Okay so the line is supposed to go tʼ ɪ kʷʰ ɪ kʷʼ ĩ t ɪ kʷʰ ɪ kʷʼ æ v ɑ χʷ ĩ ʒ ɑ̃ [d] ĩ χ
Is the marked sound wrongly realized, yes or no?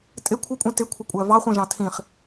yes